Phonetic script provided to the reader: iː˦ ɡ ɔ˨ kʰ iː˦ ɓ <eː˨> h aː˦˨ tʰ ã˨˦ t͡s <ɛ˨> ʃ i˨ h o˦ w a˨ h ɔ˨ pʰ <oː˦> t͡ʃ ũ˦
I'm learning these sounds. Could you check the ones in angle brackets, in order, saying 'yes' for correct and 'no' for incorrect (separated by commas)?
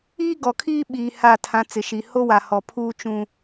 no, no, no